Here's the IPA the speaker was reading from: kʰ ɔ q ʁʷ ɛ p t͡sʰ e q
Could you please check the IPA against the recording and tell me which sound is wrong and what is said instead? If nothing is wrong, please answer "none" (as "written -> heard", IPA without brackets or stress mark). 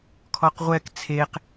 p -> k